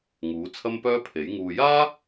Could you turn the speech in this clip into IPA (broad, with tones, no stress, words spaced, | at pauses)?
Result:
ŋuː˨˥ t͡sʰɐ˥mpœː˥pʰe˨˥j ŋuː˨jaː˥